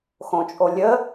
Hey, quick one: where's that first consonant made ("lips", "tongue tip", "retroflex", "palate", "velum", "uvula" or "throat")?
velum